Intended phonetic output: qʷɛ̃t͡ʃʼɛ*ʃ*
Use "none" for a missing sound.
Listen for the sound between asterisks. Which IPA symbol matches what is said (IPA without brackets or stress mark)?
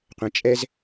z